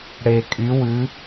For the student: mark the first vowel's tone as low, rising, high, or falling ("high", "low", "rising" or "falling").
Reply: low